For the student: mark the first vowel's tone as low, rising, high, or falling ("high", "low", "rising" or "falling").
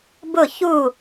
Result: falling